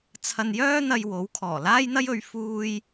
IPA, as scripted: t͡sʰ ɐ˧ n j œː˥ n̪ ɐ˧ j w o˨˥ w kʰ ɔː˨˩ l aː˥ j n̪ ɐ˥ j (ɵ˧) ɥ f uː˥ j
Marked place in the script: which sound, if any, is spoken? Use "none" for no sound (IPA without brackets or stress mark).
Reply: ɵ˧